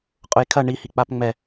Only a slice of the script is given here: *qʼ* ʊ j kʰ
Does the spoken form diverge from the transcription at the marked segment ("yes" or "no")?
no